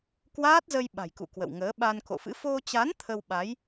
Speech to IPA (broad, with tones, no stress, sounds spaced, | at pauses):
k w aː˦˥ t̚ z ə˧ j ɓ a̤˨˩ j k ṵ˧˨ k w ə̰˧˨ w ŋ əː˨˦ ɓ a˧ n k o̰˧˨ f ɨ̰˧˥ f o˧ t͡ɕ a˨˦ n t̪ʰ ə˧ w ɓ a˨˦ j